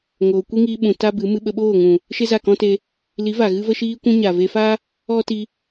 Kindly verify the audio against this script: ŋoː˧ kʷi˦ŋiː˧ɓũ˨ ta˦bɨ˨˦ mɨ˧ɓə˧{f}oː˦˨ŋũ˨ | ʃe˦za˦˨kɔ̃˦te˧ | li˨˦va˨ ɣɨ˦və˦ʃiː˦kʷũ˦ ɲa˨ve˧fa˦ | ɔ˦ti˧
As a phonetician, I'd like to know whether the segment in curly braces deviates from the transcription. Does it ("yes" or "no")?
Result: yes